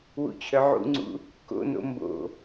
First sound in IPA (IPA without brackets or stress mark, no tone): w